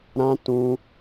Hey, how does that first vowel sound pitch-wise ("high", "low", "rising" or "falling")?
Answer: high